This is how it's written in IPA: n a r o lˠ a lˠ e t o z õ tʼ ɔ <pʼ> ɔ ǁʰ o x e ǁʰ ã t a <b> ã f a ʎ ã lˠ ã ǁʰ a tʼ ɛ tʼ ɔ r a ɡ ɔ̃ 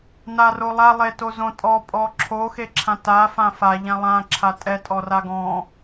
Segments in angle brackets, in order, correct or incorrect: correct, incorrect: f

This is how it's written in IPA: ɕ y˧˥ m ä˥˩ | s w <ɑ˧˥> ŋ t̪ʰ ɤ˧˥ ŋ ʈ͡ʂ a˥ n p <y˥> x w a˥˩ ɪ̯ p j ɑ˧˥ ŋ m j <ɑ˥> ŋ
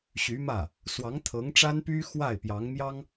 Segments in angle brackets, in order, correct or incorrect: correct, correct, correct

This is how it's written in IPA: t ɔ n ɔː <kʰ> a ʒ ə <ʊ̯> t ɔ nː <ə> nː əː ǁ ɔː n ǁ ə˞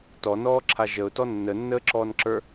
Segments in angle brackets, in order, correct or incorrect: incorrect: ǁʰ, correct, correct

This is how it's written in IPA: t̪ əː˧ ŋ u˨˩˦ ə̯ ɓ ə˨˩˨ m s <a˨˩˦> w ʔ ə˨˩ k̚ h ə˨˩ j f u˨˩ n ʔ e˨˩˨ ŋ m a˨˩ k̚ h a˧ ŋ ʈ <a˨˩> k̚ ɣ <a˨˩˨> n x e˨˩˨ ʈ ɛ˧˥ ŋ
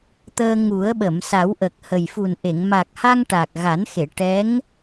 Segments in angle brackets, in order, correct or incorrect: correct, correct, incorrect: a˨˩˦

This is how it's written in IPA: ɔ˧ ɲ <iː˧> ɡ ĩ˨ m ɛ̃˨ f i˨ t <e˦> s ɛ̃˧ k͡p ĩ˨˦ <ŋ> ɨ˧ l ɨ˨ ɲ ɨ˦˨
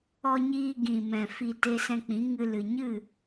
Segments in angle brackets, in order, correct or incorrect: correct, incorrect: e˧, correct

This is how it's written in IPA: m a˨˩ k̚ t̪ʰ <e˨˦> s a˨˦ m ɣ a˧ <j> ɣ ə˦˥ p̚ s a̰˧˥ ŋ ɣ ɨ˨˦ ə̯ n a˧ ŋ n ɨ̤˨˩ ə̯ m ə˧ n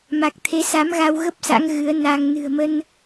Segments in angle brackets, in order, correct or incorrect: correct, incorrect: w

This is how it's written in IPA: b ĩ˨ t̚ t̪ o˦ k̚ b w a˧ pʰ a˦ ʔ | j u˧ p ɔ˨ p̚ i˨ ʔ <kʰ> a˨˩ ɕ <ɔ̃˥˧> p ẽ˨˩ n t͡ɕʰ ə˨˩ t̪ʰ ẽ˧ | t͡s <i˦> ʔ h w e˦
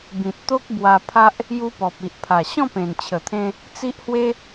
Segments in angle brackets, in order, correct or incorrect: incorrect: pʰ, correct, correct

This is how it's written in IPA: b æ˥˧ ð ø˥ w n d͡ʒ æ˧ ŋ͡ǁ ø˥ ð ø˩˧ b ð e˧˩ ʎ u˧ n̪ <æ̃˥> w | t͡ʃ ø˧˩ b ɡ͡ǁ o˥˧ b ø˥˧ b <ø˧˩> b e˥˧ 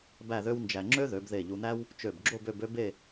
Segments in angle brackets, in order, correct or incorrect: incorrect: æ˥, incorrect: ø˥

